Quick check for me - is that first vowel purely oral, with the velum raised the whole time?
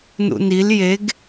yes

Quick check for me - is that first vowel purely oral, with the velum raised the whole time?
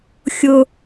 yes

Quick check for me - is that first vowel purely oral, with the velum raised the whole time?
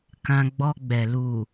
no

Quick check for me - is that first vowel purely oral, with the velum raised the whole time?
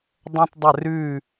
no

